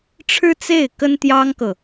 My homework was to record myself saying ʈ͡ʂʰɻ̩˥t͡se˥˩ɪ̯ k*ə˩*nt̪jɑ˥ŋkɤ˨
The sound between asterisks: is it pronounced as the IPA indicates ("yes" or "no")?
no